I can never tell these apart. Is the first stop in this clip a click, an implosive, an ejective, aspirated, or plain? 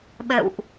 implosive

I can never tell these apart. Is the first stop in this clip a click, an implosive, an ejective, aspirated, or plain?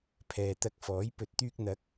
aspirated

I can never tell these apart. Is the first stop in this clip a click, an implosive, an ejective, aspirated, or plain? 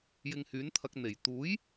aspirated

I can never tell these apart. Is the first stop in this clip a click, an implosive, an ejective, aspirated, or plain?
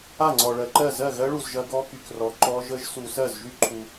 click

